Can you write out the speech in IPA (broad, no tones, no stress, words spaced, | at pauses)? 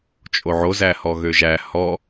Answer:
t͡ʃʼoʕo zæhɔɣøʒæ hɔ